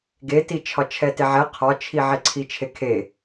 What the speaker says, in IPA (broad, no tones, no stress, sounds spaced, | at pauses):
ɡ e t i t͡ʃʰ ɒ t͡ʃʰ ɛ t e ʕ ɛ qʰ ɒ t͡ʃʰ i ʕ e ǀʰ i t͡ʃʰ e kʰ e